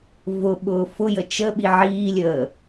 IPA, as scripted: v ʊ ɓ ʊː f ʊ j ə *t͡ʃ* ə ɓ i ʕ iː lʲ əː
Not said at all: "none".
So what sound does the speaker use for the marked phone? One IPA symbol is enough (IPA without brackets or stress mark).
t͡ʃ